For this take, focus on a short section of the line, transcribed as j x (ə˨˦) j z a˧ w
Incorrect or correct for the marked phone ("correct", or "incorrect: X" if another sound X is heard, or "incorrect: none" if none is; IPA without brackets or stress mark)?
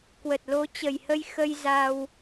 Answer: incorrect: ə˧